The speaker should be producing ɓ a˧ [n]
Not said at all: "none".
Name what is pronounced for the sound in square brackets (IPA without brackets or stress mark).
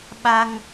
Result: ŋ